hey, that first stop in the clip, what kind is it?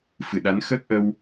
implosive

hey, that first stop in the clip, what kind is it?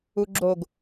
click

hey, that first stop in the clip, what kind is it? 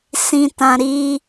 plain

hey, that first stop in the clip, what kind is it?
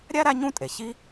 ejective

